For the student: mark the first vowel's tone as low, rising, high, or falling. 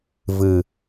low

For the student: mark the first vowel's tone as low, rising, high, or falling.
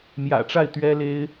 low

